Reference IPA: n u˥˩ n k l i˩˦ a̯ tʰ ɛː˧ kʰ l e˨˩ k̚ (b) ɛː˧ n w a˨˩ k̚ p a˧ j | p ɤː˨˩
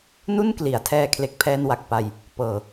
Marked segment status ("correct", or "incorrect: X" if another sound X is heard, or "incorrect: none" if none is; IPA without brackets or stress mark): incorrect: pʰ